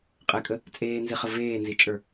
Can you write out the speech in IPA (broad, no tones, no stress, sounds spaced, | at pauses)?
qʼ ɛ kʼ ə | t͡sʼ eː n z i χ ə v eː n z i t͡ʃʼ ə˞